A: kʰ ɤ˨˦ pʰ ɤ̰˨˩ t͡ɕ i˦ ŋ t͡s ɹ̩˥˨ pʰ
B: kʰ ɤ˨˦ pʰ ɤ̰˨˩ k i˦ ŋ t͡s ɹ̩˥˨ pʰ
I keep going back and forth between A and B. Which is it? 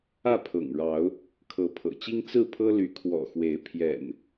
A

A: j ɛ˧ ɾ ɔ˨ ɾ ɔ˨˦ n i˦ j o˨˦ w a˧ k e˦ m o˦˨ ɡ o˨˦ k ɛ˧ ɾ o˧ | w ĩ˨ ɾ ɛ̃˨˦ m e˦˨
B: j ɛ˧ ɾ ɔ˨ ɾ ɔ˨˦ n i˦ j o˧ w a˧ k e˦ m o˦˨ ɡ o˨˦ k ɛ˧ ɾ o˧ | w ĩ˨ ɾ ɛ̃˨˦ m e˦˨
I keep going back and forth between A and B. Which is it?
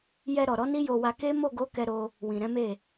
B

